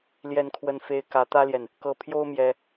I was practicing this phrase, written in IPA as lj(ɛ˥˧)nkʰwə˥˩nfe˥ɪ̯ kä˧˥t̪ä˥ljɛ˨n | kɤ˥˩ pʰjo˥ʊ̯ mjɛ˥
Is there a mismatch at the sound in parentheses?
no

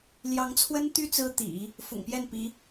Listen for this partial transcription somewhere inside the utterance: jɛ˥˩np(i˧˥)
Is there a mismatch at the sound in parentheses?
no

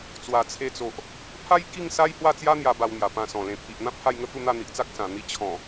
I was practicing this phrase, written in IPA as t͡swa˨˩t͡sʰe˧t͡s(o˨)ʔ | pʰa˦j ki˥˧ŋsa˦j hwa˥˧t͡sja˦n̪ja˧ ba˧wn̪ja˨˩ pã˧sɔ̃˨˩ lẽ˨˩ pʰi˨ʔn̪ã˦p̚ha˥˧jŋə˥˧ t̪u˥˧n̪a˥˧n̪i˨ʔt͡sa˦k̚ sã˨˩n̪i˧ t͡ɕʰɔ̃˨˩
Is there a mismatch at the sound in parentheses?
no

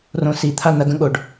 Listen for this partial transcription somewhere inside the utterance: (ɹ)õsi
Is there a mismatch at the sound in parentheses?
yes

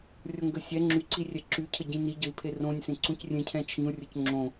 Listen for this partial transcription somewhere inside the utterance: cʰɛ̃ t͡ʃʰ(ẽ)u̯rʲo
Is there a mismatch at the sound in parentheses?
yes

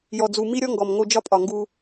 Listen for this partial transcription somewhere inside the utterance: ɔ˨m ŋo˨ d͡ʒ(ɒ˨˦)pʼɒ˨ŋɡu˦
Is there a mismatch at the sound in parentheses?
yes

